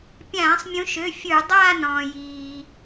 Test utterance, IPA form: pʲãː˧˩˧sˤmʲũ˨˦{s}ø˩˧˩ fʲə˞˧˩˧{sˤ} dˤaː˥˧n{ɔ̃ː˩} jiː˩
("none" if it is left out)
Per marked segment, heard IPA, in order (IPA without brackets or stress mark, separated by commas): ʃ, none, ɔ̃ː˩